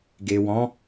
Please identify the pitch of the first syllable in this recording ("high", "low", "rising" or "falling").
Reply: low